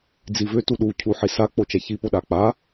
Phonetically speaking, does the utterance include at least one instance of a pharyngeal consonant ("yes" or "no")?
yes